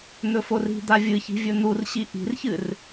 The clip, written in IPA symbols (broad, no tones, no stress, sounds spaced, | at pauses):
n̪ ɵ f o r i̤ d̪ a vʲ ɨ ç i̤ vʲ ɵ n̪ u r ɕ i ʔ i̤ r ç ɨ r